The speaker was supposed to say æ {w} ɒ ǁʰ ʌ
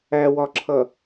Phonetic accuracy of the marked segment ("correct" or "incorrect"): correct